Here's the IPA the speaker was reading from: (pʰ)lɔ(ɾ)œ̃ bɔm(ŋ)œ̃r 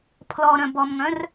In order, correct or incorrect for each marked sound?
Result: correct, correct, correct

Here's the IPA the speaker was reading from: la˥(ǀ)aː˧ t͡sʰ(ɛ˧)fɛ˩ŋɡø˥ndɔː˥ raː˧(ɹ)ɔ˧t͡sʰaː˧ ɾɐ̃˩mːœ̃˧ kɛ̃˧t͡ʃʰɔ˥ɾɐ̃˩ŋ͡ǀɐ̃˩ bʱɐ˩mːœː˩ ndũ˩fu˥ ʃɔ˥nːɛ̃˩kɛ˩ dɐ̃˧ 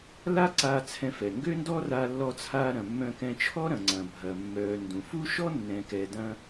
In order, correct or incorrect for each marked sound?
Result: correct, incorrect: ɛ̃˧, incorrect: lː

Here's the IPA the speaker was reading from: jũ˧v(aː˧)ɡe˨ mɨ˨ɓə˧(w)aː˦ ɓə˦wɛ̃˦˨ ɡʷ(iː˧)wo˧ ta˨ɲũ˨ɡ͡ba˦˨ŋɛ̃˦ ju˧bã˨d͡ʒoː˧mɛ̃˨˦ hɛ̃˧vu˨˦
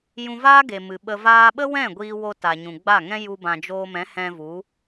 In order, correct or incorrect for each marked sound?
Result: incorrect: aː˦, incorrect: v, correct

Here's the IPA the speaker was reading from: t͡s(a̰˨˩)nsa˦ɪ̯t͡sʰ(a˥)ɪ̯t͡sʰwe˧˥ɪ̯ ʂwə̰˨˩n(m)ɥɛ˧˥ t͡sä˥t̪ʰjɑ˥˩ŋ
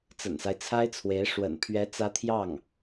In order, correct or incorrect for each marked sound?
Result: incorrect: ə̰˨˩, correct, incorrect: pʰ

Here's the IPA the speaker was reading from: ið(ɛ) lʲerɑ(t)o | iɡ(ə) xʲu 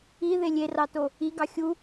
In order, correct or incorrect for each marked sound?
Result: incorrect: e, correct, incorrect: ɑ

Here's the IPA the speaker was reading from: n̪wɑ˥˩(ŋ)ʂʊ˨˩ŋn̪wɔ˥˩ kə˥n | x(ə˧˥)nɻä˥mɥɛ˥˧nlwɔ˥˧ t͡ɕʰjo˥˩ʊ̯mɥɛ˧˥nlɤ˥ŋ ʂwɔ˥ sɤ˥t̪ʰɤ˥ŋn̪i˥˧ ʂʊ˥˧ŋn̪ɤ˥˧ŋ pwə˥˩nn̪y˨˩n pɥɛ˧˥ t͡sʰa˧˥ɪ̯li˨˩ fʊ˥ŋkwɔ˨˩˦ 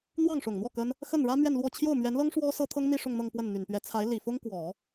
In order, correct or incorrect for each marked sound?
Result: correct, incorrect: ə˥˩

